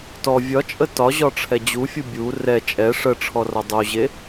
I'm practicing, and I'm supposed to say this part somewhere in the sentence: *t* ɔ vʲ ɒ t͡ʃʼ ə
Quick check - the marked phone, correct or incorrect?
correct